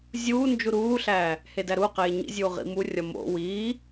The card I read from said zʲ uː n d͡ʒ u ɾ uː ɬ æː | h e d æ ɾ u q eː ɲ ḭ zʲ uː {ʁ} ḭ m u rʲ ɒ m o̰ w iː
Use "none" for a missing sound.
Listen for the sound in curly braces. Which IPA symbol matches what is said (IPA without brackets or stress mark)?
ʁ